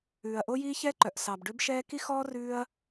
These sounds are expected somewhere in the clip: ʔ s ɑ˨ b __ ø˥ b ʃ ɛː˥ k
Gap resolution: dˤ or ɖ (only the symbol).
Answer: ɖ